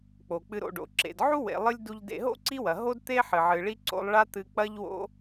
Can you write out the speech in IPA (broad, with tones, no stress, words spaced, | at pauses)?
k͡po˩k͡pɨ˨ɾo̰˨ ɖo̰˩ǁḛ˩dʕu˥ wḛ˨lˠɨ˥lʲ du˨ʎdḛ˨ɦo̰˥ ǀi˥wɐ˩ɦo˥d t̪e˥ħɨ˩ ʕɨ˩ɭi˥ǀo̰˦lˠ ɭa˦ t̪ɨ˨k͡pɐ˦ʎwo̰˦